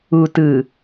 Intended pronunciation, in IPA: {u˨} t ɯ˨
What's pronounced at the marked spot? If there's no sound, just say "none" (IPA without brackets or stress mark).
u˨